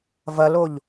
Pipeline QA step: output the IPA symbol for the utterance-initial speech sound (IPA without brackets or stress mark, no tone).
v